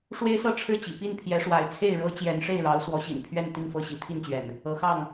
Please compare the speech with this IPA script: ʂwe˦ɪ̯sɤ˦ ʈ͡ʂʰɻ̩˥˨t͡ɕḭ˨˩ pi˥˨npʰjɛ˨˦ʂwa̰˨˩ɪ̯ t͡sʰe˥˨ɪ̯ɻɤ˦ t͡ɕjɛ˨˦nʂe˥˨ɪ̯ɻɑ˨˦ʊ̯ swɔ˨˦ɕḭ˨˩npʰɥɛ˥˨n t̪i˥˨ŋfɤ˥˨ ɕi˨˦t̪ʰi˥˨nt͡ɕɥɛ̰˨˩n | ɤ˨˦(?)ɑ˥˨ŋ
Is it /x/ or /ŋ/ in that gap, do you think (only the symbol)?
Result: x